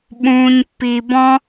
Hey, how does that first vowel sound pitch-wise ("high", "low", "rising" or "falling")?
low